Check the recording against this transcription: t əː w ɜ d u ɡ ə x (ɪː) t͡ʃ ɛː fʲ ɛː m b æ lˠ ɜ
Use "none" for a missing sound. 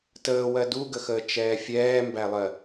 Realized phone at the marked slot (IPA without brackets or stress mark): əː